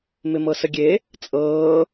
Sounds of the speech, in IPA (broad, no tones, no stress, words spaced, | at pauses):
mɪmɤsəɡʲe | t͡sʼɤː